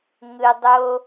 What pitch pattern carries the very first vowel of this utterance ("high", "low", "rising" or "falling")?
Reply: low